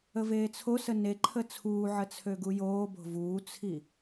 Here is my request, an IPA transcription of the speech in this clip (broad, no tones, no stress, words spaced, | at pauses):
əveːt͡sʰosə neǃʰə t͡sʰuːʕə t͡sʰøɡujoːbo̤ vuːt͡sʰi